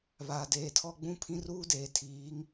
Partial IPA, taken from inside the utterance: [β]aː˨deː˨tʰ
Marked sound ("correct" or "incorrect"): correct